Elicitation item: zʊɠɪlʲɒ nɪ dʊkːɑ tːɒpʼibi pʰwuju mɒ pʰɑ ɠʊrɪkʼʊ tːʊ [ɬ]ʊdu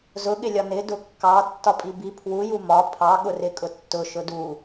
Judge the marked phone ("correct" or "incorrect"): incorrect